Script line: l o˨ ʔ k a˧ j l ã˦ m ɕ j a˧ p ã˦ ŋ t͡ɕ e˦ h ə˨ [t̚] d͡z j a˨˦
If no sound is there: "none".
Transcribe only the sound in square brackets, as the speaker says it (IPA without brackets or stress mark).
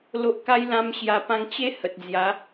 t̚